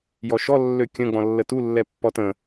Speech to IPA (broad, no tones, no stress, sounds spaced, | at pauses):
j ɔ ʃ ɔ lː ø kʲ ə̃ ɡ͡b ɔ̃ lː ə t u lː ɛ pː ɔ t ə̃